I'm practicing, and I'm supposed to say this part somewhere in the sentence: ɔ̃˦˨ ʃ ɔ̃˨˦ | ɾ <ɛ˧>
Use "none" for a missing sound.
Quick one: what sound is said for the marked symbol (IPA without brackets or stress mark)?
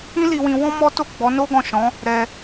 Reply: ɛ˧